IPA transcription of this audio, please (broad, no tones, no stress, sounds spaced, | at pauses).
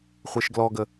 χʷ e ʃ ɡ l ɔ ɡ ə